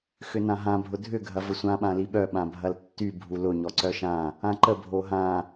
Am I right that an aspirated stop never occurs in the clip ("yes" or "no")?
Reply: yes